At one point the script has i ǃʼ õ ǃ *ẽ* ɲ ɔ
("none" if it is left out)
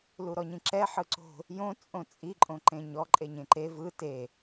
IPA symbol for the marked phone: ẽ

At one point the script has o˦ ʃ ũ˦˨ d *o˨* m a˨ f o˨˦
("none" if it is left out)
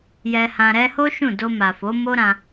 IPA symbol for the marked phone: o˧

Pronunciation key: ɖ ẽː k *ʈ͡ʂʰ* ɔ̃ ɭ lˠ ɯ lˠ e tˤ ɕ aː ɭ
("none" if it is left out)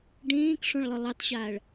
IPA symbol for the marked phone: ʂ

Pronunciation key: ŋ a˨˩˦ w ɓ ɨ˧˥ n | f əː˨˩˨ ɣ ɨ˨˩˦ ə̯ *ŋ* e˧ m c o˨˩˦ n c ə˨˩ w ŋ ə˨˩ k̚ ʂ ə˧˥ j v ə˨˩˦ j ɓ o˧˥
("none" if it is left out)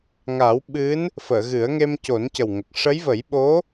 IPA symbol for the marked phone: ŋ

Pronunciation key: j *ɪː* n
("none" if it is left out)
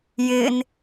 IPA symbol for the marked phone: ɪː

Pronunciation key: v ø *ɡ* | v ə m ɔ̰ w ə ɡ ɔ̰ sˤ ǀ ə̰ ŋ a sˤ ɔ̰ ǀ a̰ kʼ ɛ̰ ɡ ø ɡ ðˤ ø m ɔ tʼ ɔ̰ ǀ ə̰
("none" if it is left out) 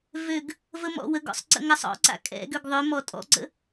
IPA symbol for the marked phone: ɡ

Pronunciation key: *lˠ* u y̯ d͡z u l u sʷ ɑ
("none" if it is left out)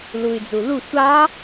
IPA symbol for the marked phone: l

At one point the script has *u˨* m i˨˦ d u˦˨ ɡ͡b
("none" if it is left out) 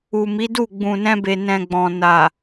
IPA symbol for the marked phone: u˨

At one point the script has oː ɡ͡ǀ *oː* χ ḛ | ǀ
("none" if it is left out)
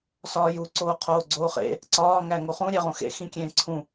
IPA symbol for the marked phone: oː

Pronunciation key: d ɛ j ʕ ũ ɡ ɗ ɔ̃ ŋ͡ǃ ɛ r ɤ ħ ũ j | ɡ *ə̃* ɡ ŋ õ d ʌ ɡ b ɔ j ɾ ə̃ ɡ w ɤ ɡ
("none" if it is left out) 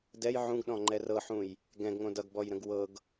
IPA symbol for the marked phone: ɛ̃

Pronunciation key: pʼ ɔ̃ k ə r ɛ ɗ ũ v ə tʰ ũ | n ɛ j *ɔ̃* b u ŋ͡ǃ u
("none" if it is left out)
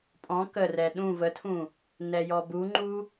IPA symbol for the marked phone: ɔ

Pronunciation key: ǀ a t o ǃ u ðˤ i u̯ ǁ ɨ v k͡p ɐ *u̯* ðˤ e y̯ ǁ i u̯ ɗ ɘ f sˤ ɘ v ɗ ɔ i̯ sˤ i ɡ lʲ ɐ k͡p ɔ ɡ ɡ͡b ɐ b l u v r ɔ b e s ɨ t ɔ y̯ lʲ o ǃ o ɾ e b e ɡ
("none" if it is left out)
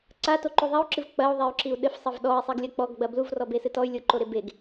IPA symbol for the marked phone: u̯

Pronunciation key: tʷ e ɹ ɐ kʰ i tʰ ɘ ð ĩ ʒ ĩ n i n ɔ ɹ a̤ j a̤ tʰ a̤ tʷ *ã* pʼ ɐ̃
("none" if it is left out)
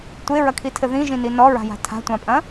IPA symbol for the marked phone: ã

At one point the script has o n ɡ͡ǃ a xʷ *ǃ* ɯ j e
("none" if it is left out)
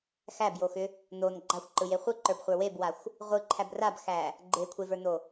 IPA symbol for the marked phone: ǃ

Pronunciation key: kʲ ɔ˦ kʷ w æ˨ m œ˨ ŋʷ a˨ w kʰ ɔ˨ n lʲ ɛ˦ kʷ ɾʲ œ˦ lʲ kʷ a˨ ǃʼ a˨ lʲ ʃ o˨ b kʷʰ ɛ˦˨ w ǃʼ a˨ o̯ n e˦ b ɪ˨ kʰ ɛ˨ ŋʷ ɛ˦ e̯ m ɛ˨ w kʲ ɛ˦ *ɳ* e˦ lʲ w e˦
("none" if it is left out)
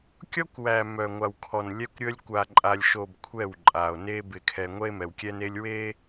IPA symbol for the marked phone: n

